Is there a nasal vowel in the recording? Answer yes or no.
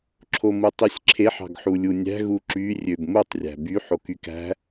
no